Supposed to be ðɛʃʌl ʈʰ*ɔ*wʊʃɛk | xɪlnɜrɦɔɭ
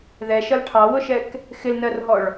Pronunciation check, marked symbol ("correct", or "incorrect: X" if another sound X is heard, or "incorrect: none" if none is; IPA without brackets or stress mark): incorrect: ɑ